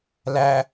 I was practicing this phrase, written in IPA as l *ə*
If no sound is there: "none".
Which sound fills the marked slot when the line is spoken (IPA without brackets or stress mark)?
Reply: æ